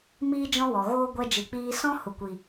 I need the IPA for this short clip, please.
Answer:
m iː˦ d͡ʒ ɔ̃˦ w ɔ˨ ɣ oː˦ ɡʷ ɛ˧ d͡ʒ ɨ˨ k͡p iː˧ s ɔ̃˦ h u˨ kʷ i˨

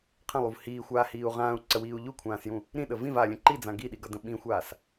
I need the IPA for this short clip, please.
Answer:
qʰ ə̃ lˠ u v h iː xʷ aː h iː u̯ ʁ ãː u̯ ǀ ə w iː u̯ ʎ u kʷʰ ãː s j ũ | ɾ ĩ ɗ ə v ĩ v aː lʲ ə̃ ǃ i d͡z ã ɡ i ɗ i ɡ ʌ d ə̃ ɓ ĩ xʷ aː s

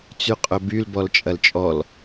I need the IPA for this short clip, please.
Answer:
t͡s y qʼ ɵ b y l b ɔ l t͡ʃʼ ɐ l t͡ʃʼ ɔ l

